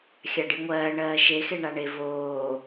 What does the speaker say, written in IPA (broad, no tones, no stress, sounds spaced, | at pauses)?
xʲ a ɖ i ŋʷ ɜː ɳ ɜː ʃ e x e ɳ a ɳ e v oː